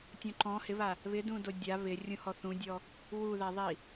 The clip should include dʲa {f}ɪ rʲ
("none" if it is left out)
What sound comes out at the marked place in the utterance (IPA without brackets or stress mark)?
β